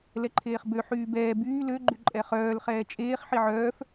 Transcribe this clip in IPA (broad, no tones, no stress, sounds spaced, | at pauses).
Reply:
l ɛ ǃʰ eː χ b ø ħ yː b ɛː b yː l ø ɡ͡ǃ y ǃʼ ɛ χ œː l χ ɛː t͡ʃʼ eː χ ħ i ʕ œː f